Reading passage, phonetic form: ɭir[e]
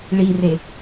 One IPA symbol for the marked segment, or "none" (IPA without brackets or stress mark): e